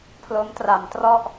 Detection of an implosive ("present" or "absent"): absent